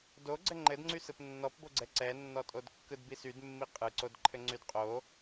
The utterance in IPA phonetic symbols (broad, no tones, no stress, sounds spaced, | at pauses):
d o ɡ͡ǀ ɘ ŋ͡ǃ ɘ d ŋ͡ǀ y s ɯ p nː ɔ p b o ɡ͡ǀ ɛ ǀ ɛ nː ɔ tʼ o d kː ɯ d b i s y d mː i qʼ ɯ ǀ o d ǃʰ ɘ ŋ͡ǀ y d qʼ o